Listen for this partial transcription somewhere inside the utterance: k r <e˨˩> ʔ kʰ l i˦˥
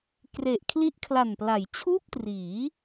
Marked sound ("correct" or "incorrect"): correct